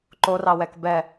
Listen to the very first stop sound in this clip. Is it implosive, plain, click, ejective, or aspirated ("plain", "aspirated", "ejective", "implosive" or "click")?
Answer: click